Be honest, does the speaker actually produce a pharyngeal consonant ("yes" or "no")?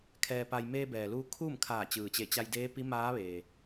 no